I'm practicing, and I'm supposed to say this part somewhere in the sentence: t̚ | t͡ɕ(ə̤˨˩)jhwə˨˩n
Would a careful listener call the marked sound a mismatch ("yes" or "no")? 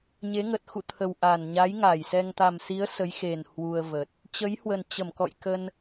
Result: yes